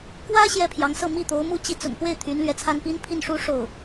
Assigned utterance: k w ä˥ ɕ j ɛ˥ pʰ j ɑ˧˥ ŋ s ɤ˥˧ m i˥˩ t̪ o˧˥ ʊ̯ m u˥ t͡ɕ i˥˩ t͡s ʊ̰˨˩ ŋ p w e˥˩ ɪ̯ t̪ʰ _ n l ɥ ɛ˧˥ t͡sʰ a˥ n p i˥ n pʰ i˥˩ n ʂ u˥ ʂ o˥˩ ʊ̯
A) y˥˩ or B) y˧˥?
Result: B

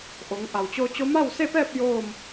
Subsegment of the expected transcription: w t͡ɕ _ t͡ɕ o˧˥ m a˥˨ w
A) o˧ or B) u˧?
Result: A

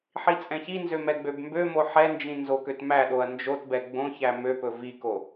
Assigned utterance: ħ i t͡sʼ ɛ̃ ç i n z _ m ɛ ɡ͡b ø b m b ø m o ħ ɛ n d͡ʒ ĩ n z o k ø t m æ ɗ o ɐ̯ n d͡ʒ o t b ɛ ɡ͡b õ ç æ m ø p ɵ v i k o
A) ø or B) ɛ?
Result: A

